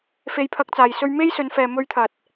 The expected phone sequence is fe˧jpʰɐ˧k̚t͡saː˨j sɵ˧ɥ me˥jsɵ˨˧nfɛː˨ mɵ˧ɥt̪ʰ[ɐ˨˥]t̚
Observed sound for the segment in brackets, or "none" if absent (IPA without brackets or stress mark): ɐ˨